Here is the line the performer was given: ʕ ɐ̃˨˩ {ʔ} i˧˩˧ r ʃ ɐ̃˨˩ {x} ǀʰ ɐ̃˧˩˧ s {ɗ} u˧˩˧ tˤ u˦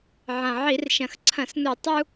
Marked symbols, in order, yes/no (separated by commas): no, yes, no